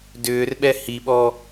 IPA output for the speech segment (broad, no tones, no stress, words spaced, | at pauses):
dʏːrɓɛ hiɓɔ